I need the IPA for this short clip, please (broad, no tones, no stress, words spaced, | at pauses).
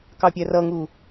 kɑpʲærʌŋu